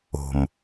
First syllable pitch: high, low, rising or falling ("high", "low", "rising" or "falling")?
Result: low